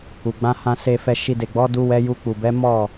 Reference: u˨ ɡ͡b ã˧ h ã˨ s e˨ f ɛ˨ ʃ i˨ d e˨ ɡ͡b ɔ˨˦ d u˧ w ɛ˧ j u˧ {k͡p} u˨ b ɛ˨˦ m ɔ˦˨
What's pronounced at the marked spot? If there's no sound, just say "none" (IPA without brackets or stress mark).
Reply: k͡p